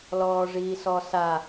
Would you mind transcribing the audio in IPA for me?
lɔːʐiːsɔsa

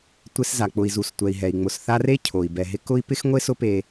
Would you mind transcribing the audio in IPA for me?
tʷe˦sza˩k͡pʊ˨i̯ zu˨stʷɛ˨i̯ɦɛ˩i̯ŋ͡mʊ˨s θa˦re˥ cʰo˩i̯ bɛ˩ɦɪ˦ kʊ˥i̯ pɪ˥x ŋʷe˥sʊ˦pe˨

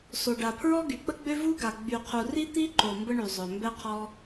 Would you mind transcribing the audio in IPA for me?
so˨ɖa˨pʰɹɔ˦ ɡy˨k͡pə˦ɡ͡bø˦ vu˦ɡa˨ ɡ͡by˨qʰu˨ri˦ t̪i˦ǃo˨ mbə˦ɳy˨zˤœ˨ mbɛ˧qʰɔ˧

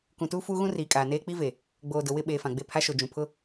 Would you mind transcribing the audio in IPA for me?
kũ˨tuː˦ fuː˦ɣũ˦riː˨kʼaː˨ neː˦k͡pi˦ve˨ | ɡ͡boː˨dʊ˨ wɪ˦˨ɓeː˨ fã˨ɡ͡be˦˨ pʰa˦ʃo˨ d͡ʒũ˨ pʰʊ˦

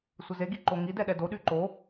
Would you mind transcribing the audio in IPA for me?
sʷəzeɡi ǃoŋidɛ ɗɛdoɗy ǃo

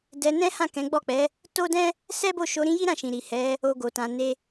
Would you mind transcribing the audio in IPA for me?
dɛ˧nɛ̃˦ hã˦˨kɛ̃˨˦ɡ͡bɔ˦˨k͡pɛ˨˦ | to˦dɛ̃˦ | sɛ˦bo˦˨ ʃo˨˦ɾĩ˦ji˦ ɾã˦˨ʃĩ˨ ɾi˨hɛ˨˦ | o˦ɡo˧tã˧ne˦

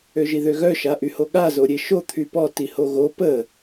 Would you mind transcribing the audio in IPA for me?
øʒiðøɣœ ʃaʔyhoɠa zoɾʲeʃo t̪ʰypɔ tihoɣo pə

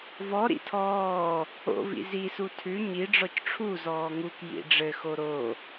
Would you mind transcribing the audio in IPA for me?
vɔ ɾḭtʰɔː | o̰vḭ zisu tʰʉ ɲi ɖ͡ʐɔcʈ͡ʂʰuzɔː ŋuk jḭɖ͡ʐɘxo ɾo

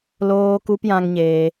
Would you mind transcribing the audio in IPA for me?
loː˧ku˧pjã˧ŋɲeː˧

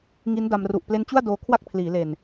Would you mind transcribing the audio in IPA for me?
ŋi˦˥nda˧m ru˨˩ʔple˦˥nt͡ɕu˥˩a̯ doː˧kʰwa˥˩k̚pʰliː˩˦le˨˩n

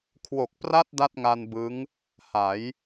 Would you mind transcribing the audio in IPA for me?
kʰwo˨˩k̚pra˥˩t̚ da˥˩t̚ŋa˧nbɯ˦˥ŋ | ha˩˦j

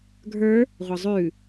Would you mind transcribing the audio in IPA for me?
ɡʱə˞ | ʁʷəzˤʉ

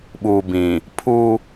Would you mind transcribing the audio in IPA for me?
ɓuː˨bĩ˨ | pʰu˦

